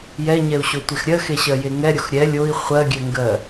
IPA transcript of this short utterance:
j ɛ ɲ ɛ u̯ ɕ o tʷ e x ɾʲ ɜ x e ɕ ɜ j e ŋ ɛ ɾʲ o x ɾʲ ɛ lʲ o i̯ χʷ ɜ ɡʲ ɛ ŋ ɡ ɜ

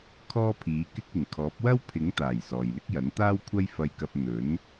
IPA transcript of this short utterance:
kʰ ɔː˥ pʰ iː˨˥ k ɪ˥ k̚ ɪ˨˩ ŋ kʰ ɔː˨˥ p̚ w ɐ˥ w pʰ ɪ˨˥ ŋ t̪ aː˨˩ j s ɔː˨ j l ɪ˥ k̚ j ɐ˨˥ n t̪ aː˥ w kʷʰ ɐ˥ j f ɐ˧ j k ɐ˧ p̚ n̪ ɵ˨˥ n

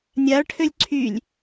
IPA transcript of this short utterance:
nʲ a ɭ ʈʰ ø lʲ ǀʰ y lʲ

